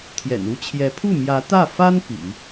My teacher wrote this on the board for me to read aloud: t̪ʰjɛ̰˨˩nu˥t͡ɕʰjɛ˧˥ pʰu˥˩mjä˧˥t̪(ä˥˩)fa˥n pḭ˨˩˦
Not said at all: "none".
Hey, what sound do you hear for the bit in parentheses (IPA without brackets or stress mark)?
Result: ä˥˩